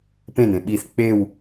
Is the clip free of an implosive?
no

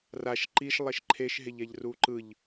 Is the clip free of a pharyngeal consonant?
yes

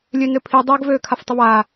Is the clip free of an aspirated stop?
no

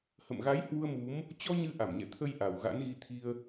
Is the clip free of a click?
yes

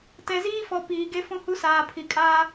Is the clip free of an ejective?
no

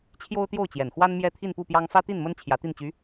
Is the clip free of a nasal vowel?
yes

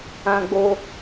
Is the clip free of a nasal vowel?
no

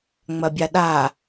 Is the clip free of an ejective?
yes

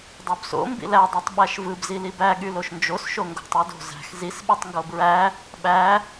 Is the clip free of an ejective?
yes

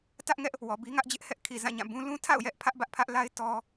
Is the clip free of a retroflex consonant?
yes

